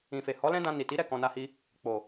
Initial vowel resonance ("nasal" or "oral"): nasal